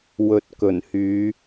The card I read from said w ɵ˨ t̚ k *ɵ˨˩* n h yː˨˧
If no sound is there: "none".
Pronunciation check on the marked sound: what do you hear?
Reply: ɵ˨˩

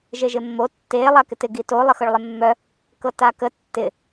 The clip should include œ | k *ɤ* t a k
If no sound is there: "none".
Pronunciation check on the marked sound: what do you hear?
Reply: ɤ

